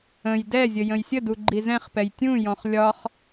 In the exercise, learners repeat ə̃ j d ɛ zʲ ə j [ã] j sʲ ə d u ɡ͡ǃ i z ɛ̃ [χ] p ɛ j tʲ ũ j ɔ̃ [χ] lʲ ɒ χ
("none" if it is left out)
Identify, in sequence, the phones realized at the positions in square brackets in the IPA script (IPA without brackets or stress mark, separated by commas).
ə̃, χ, χ